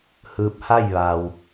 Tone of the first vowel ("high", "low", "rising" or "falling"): rising